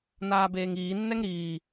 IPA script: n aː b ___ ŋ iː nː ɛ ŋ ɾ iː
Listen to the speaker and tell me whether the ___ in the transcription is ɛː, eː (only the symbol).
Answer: eː